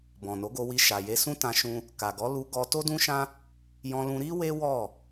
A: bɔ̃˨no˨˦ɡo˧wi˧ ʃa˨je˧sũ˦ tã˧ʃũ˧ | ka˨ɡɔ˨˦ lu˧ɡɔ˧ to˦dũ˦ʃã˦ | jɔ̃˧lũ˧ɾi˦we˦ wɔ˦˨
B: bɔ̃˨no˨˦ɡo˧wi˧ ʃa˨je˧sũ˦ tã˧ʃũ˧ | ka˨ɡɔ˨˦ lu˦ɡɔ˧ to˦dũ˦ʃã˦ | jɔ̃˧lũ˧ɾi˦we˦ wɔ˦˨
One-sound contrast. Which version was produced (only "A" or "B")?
A